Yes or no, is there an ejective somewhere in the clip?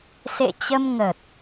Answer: no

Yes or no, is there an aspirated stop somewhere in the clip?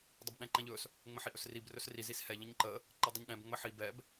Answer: no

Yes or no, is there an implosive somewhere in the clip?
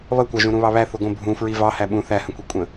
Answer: yes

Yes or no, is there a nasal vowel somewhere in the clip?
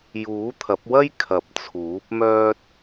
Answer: no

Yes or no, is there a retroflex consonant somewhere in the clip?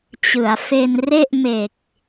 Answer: no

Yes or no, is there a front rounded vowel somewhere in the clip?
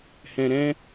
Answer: no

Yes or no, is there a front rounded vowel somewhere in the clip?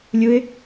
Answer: no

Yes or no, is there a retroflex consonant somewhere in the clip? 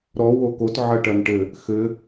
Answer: yes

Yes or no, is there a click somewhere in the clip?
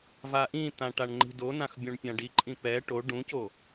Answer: yes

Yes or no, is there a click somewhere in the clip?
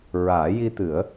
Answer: no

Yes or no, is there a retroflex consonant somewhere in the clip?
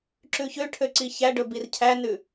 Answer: yes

